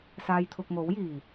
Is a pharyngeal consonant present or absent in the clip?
absent